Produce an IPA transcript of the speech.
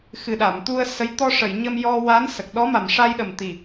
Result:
x ɨ˨˩ ɗ a˨˩˨ m t̪ u˧ ə̯ s ə˧˥ j t̪ ɔ˧ ʂ ə˨˩˨ j ɲ ə˧ m j ɔ˧ w a˧˥ n s ə˨˩ k̚ ɗ ɔ˧˥ m a˨˩ m ʂ a˧ j ɗ ə˨˩ m t̪ i˨˩

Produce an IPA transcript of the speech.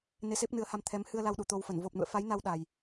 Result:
n e˧ s e˦˥ p̚ n ɨ˨˦ ə̯ h a˧ m t̪ʰ ɛ˨˦ m h ɨ˧ ə̯ l a˧ w ɗ u˧˩ t̪ o˧ w f ə˧˩ n v o˨˩ p̚ n ṵ˧˨ ə̯ f a˨˦ j n a˧ w ɗ a˨˩ j

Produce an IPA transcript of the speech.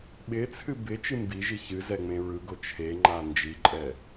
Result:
ɓ ɪ t͡sʰ ɨ b ɪ t͡ʃ ɨ m b i ʒ i ç ɨ z ɛ ŋ͡m ẽ ɹ ɯ ɡ o t͡ʃʰ e ŋ͡ǃ a n d͡ʒ i ǃʼ ɛ

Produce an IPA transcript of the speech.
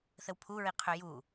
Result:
θ ə w pʰ u ɹ i qʰ ø j u

